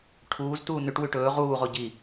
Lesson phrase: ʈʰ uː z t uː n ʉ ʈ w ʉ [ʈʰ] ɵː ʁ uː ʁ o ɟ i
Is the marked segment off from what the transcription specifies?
yes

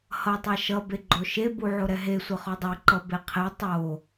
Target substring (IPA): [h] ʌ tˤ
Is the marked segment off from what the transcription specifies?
no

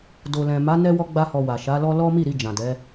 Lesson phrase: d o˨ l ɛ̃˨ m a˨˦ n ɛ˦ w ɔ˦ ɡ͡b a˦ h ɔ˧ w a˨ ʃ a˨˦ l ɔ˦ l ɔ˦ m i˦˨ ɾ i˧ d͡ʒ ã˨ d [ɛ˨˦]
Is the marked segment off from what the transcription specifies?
no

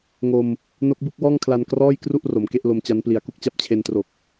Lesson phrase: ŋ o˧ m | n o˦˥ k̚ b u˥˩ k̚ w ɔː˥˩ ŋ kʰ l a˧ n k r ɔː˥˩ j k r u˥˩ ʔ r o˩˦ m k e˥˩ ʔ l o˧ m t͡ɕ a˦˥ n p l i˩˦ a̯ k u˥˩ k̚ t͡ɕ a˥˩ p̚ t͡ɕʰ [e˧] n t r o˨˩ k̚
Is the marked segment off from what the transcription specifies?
no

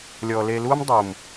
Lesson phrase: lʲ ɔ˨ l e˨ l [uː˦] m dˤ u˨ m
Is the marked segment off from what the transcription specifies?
no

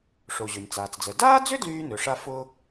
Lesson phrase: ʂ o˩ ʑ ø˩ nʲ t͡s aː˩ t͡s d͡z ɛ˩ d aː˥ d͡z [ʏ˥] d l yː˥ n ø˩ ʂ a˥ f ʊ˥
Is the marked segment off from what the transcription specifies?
no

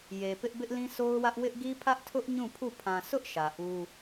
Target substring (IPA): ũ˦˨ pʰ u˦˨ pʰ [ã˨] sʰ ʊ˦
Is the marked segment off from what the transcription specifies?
no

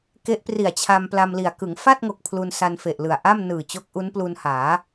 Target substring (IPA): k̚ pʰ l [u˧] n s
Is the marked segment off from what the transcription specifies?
no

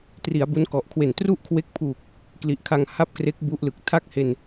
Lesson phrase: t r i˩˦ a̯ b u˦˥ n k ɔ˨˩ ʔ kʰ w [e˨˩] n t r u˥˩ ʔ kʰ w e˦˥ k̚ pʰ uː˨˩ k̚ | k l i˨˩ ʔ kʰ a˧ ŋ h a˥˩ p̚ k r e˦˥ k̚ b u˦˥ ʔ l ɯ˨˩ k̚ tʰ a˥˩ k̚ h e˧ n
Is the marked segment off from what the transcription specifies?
no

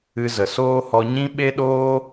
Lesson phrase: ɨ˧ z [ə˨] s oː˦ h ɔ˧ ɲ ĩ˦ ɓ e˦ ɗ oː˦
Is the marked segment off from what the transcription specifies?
no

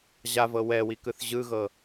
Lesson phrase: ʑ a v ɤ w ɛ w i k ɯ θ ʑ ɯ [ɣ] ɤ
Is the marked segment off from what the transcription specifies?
no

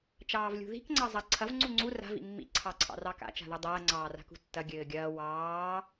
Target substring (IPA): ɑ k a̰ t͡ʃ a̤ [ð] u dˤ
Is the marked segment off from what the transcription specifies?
no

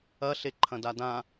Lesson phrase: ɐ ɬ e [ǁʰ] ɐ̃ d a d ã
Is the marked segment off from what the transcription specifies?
yes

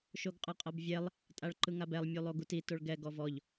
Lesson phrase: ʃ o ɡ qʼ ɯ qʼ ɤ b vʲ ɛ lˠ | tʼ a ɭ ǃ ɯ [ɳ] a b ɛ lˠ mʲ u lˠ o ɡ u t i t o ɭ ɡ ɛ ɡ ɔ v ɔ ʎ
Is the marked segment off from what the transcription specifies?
yes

